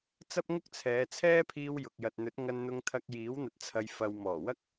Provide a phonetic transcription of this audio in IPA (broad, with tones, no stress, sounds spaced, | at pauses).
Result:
t͡s ɐ˥ p̚ ŋ ʊ˥ k̚ t͡sʰ ɛː˨˧ t͡sʰ ɛː˥ pʰ iː˧ w j ʊ˨ k̚ j ɐ˨ t̚ n̪ ɵ˨˥ t̚ ŋ ɐ˧ n n̪ ʊ˧ ŋ t̪ʰ ɐ˧ k̚ j iː˨˥ w n̪ ɐ˧ t̚ t͡sʰ ɐ˧ j f ɐ˨ w m ɔː˨˩ w ɐ˥ k̚